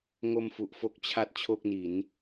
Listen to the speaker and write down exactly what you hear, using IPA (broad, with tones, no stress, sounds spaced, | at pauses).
ŋ o˧ m f u˨˩ ʔ f o˦˥ k̚ t͡ɕʰ a˦˥ t̚ t͡ɕʰ o˥˩ k̚ n i˩˦ n